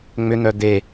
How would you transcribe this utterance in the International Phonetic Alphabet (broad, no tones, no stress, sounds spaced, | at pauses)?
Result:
ŋ͡m ʏ n̪ œ d̪ e